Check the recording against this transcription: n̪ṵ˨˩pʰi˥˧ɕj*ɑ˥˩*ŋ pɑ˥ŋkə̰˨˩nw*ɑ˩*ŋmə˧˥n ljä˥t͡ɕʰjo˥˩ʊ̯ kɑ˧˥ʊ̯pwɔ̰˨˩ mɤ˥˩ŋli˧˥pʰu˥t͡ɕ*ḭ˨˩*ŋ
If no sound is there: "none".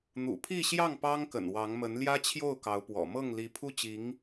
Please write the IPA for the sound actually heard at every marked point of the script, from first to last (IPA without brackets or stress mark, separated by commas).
ɑ˥˩, ɑ˧˥, i˧˥